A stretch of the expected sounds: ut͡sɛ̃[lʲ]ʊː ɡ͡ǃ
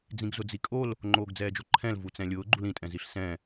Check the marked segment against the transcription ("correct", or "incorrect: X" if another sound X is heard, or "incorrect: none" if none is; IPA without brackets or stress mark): correct